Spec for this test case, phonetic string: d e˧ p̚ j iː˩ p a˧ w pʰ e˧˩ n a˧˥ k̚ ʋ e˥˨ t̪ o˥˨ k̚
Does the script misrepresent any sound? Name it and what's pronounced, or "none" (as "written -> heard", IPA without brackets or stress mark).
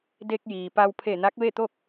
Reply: p̚ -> k̚